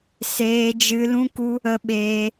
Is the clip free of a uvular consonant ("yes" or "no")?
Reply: yes